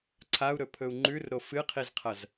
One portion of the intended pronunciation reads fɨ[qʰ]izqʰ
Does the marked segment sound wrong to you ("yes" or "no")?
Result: no